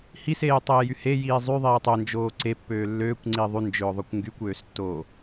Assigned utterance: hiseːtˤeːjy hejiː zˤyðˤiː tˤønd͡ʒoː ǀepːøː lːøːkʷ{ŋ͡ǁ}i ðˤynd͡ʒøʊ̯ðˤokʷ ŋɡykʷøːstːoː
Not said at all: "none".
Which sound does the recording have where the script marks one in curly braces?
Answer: ŋ͡ǀ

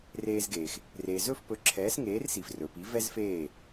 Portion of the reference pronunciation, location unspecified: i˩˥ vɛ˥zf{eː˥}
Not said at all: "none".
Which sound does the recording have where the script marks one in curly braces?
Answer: eː˥˩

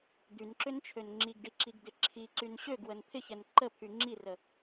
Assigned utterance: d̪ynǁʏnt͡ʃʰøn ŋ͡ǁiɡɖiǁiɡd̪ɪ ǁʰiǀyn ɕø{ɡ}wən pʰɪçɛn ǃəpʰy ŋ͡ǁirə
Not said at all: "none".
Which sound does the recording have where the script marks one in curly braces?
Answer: ɡ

